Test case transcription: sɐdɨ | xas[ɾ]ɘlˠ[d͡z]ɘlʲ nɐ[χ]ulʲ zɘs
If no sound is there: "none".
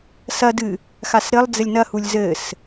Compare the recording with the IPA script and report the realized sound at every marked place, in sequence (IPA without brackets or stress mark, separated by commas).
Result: ɾ, d͡z, h